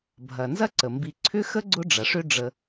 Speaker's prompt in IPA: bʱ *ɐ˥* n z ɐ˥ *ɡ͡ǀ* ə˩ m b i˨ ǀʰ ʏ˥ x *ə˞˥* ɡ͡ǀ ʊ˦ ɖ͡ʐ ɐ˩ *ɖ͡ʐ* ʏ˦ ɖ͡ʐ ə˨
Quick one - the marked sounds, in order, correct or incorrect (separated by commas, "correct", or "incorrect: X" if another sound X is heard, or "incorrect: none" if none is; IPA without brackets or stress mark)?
incorrect: ɐ˩, incorrect: ǀ, incorrect: ə˥, incorrect: ʂ